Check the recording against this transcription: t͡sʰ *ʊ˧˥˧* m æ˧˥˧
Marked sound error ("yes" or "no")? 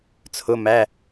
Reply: no